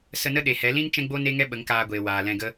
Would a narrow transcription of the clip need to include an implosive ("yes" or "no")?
yes